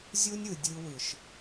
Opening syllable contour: high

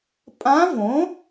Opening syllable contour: rising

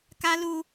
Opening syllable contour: high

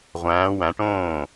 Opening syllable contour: rising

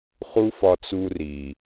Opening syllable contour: high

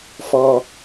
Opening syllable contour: low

